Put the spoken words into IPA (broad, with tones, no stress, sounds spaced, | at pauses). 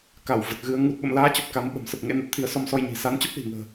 k a˧˩ w v ə˨˩ t̚ ɣ ɨ˨˦ ə̯ ŋ u˨˩ t̚ ɓ ə̰˧˨ m l aː˨˦ t͡ɕ ə˨˩ p̚ k a˨˦ m ɓ ə̤˨˩ m s ə˨˩ p̚ ŋ ḛ˧˥ n a˨˩ t̚ t̪ʰ i˨˦ ə̯ s ɔ˧ m s ɔ˧ j ɲ i̤˨˩ s a˨˦ n t͡ɕ ə˦˥ p̚ l i̤˨˩ ŋ ə̤ː˨˩